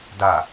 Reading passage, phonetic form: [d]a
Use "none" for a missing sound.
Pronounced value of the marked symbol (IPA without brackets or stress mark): d